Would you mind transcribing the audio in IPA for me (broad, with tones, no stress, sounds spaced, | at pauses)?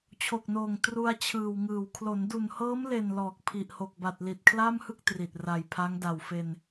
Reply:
t͡ɕʰ o˨˩ k̚ n oː˨˩ ŋ t r u˧ a̯ t͡ɕʰ ɯː˨˩ w ŋ ɯː˨˩ w kʰ l o˩˦ n d u˨˩ n h ɤː˦˥ m l e˨˩ n l ɔː˨˩ k̚ pʰ i˨˩ ʔ h o˨˩ k̚ b a˨˩ t̚ l i˨˩ t̚ kʰ l aː˥˩ m h ɯ˥˩ k̚ t r i˨˩ t̚ r a˨˩ j pʰ a˦˥ ŋ d a˨˩ w f e˧ n